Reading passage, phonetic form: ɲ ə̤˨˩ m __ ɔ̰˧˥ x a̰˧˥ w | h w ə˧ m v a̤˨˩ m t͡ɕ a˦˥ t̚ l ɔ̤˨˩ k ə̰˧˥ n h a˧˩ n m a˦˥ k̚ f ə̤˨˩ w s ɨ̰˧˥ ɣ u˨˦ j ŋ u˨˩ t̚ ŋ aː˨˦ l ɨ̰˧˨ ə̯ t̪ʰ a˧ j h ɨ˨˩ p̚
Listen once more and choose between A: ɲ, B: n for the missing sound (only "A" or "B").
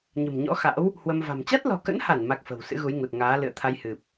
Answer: A